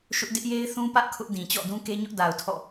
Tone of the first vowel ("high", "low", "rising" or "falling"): high